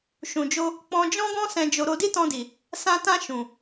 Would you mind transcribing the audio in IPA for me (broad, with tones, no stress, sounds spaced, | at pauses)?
ʃ ũ˨ d͡ʒ o˧ | k͡p ɔ̃˧ d͡ʒ ɔ̃˦ ɡ ɔ̃˦ s ɛ̃˧ d͡ʒ o˧ ɾ o˧ d i˦ t ɔ̃˧ d i˨ | s ã˧ t ã˧ ʃ ũ˨